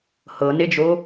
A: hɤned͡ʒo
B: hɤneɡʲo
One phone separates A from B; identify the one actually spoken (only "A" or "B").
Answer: A